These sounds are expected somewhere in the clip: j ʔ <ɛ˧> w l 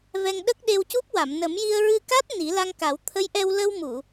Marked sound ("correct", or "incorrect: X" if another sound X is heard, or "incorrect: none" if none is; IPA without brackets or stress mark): correct